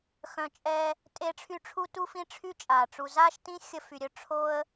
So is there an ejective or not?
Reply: yes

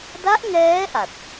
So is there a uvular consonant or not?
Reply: no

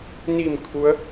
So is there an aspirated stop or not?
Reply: yes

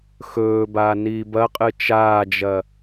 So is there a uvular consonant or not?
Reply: yes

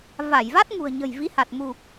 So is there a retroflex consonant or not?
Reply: no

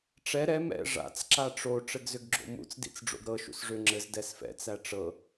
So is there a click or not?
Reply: yes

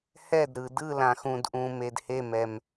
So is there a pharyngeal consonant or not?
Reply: no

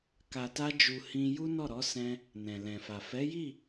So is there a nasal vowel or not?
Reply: yes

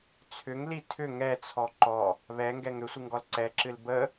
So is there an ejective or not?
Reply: no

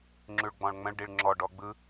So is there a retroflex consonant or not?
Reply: yes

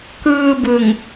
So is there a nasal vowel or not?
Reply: no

